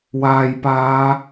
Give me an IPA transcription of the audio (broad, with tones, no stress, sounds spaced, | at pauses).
w aː˨ j p aː˨˧